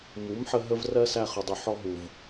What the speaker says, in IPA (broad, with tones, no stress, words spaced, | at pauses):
mu˨˦mħə˧ ɦə˧vrɜ˧ sæ˧ χʊ˨dˤu˨ ħɔ˧ɦu˨v